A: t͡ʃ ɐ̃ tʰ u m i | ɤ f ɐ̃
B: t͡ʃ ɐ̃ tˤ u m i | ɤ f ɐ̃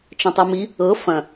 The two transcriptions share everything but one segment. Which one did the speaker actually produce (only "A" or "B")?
B